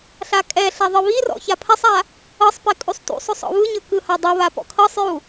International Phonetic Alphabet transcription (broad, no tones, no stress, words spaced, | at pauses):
ɬakʼɛɬa ðˤɯβirɔ̰ çapʰɛsˤa | ɤsˤpe kʼusˤtṵsˤosˤ ɔ̰βɯɲɤ kɯhadˤɤβa pɔ̰kʰɤsˤju